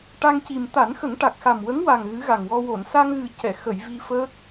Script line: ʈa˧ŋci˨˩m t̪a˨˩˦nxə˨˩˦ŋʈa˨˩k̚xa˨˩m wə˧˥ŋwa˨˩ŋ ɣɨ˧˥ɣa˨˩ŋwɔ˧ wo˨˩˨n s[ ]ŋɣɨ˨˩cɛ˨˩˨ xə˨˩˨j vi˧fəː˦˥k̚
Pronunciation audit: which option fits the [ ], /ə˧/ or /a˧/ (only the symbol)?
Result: a˧